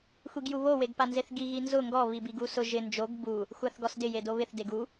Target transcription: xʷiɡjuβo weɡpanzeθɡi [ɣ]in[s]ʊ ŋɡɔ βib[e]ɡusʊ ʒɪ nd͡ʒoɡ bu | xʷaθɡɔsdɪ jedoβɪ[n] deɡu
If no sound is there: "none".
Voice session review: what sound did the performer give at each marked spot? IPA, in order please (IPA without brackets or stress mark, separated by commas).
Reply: ɣ, z, i, θ